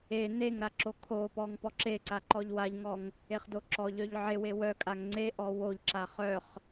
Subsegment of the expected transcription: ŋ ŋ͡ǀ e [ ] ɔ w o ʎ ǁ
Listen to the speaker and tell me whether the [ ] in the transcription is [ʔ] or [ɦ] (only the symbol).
ʔ